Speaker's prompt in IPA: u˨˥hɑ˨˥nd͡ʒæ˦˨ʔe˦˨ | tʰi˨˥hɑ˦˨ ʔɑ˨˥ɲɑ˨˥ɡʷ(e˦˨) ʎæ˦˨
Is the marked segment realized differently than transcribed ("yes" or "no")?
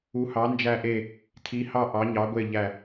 no